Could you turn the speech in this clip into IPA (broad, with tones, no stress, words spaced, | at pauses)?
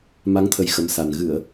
ma˨˦ŋt̪ʰə˨˩j xə˨˦msa˨˩n ɣɨ˧˩˨ə̯